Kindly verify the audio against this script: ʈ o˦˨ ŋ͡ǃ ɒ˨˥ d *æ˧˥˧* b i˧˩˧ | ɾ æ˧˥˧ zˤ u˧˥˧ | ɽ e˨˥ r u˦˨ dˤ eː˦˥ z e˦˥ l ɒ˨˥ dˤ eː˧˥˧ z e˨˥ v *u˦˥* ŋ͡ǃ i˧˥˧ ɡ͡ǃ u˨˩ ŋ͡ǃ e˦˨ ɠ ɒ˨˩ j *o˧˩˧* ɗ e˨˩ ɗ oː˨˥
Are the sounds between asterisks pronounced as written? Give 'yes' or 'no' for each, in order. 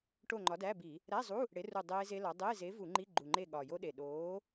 yes, no, no

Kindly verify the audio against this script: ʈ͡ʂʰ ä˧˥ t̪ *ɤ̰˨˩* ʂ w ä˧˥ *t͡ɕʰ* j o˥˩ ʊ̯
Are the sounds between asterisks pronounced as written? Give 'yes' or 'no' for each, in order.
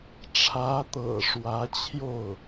yes, yes

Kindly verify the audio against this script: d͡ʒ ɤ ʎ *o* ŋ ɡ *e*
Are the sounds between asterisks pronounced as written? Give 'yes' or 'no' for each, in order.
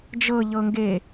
no, yes

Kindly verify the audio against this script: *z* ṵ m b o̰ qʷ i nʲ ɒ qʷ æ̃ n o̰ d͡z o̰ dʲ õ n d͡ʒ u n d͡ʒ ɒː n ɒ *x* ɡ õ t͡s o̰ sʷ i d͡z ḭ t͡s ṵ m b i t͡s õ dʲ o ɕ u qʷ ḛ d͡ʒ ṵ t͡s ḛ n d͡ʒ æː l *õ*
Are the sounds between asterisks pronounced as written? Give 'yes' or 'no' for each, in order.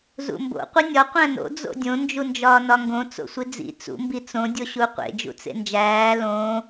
yes, no, no

